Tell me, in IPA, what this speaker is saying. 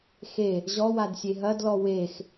x e | ʑ ɔ w a d sʲ e ɦ ɐ d l ɔ w e x

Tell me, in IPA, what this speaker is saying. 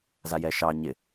z a j ɛ ʃ ɑ ɲ ɪ

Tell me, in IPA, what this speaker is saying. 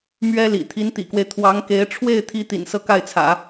m ɥ ɛ˥ l ḭ˨˩ t̪ʰ i˧˥ n t̪ ḭ˨˩ k w e˦ ɪ̯ t̪ʰ w ɑ˧˥ ŋ k e˧˥ ɪ̯ ʈ͡ʂʰ w e˥˩ ɪ̯ t̪ʰ i˧˥ t̪ ḭ˨˩ n s ɤ˥˧ k a˥˩ ɪ̯ t͡sʰ ä̰˨˩˦

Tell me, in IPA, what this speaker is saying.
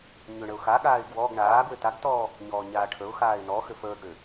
ɲ ʏ ɳ ə ʊ̯ x a ɠ aː ɪ̯ ɡ w ɔ ɡ ɳ aː ɡ w ʏ t a ɡ t ɔː | ɲ ɔː ɲ aː ʈʰ ə ʊ̯ x aː ɪ̯ n ɔ x ʏ f əː ɡ ɽ ʏ

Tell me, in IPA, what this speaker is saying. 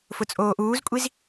f ʊ t͡sʼ oː ʔ uː z kʷʼ i z

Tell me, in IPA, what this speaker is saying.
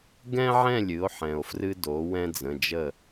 ɡ ɛ̃˥ ʕ ɛ̃˥˩ lʲ ɨ˩˥ o̯ ħ ɛ̃˩ o̯ f r ɨ˥ d o˩˥ w ɛ̃˥ d͡z ə̃˩˧˩ d͡ʒ ə˥˩

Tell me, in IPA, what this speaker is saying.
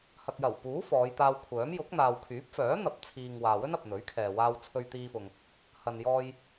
h ɐ˨ k̚ j ɐ˨˩ w p uː˨˥ f ɔː˨˧ j t̪ aː˧ w kʷʰ œː˨˥ m j ʊ˨˥ k̚ n̪ aː˨ w kʰ yː˨˥ p̚ f œː˨˥ n̪ ɐ˨ p̚ t͡sʰ iː˨ ŋ w aː˨ w ɵ˥ n ɐ˨ p̚ n̪ ɵ˨˥ ɥ kʰ ɛː˨ w aː˧ w t͡sʰ ɵ˧ ɥ t̪ iː˧ f ʊ˨ ŋ | h ɐ˨ n j ɔː˧ j

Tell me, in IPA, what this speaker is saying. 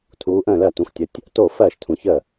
tʰ uː˨˦ ʔ ə̃ː˥˩ l ɜ˥˩ t ũ˨˦ x tʲ ə˨˦ tʲ | t oː˥˩ f ɜː˥˩ ʃ tʰ ũ˨˦ ç ə˥˩

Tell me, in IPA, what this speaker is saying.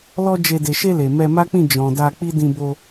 l ɔ˦ d͡ʒ e˧ d e˨ ʃ e˧ l e˨ m ɛ˧ m a˦ k͡p ĩ˦˨ d͡ʒ ɔ̃˨ d a˧ k͡p i˦ d ĩ˧ b o˧

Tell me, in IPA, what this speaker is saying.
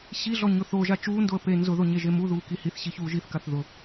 ɕ i ɮ ɔ ɲ ʊ θ o ʒ a t͡ʃ uː n d o ə̯ p e n z ʊ ð o ɲ e ʒ e m u ð uː k i h i θ ɕ i ç uː ʒ i θ k a θ ð ʊ

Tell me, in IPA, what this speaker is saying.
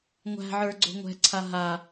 ŋʷ æ̤ ʕ ə˞ ɡ͡ǀ o̤ ŋʷ ɛ̤ ǀʰ a ɦ a

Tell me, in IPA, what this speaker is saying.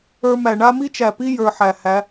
ə˞˧ m æ˨ ɳ a˦ m i˦ t͡ʃ æ˨ p i˦ j ə˞˧ ħ æ˨ h æ˨˦

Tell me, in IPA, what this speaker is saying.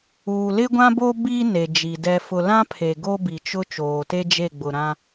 uː˨ l ɪ˦ ɡʷ ã˦ b o˦ b i˦ n e˨ d͡ʒ i˨ d ɛ˨ f ʊ˨ l ã˦ pʰ e˨ ɡ o˦ b i˨ t͡ʃ ʊ˦ t͡ʃ oː˨ t e˦ d͡ʒ e˦˨ ɡ͡b ʊ˨ ɾ ã˦

